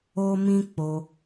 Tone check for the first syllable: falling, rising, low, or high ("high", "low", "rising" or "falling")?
high